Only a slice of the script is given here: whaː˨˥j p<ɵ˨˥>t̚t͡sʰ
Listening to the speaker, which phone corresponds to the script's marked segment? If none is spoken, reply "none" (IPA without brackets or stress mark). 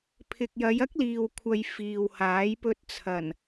ɵ˧